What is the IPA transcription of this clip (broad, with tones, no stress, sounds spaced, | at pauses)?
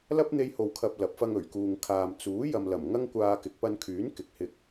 l ɐ˥ p̚ n̪ e˧ j h o˨ w kʰ ɐ˨ p̚ l ɐ˨˥ p̚ f ɐ˧ ŋ ɵ˨˩ ɥ k uː˨ ŋ kʰ aː˨ m t͡s uː˨˥ j ɐ˨ m l ɐ˨˩ m ŋ ɐ˥ ŋ kʷ aː˧ k ɪ˨˥ k̚ p ɐ˧ n kʰ yː˨˥ n k ɪ˨˥ k̚ h ɪ˧ k̚